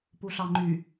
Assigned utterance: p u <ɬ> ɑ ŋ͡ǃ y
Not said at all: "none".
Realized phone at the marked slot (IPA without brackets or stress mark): ɬ